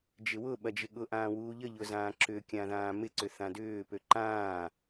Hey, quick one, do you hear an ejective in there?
no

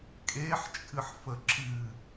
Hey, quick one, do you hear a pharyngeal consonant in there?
yes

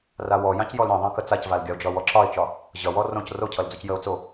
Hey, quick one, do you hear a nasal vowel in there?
yes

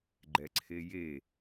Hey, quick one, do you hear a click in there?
yes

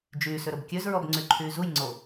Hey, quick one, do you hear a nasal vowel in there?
no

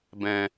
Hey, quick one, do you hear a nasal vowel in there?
yes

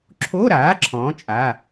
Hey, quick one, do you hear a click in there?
yes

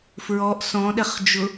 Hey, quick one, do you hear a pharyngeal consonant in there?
no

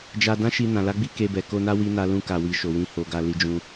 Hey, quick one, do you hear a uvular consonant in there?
no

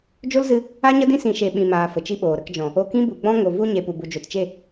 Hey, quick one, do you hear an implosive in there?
yes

